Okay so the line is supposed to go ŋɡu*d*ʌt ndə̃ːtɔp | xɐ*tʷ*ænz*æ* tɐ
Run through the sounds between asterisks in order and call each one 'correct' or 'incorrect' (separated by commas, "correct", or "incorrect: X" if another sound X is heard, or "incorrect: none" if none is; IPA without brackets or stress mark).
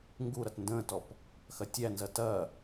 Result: incorrect: ɾ, incorrect: tʲ, incorrect: ɐ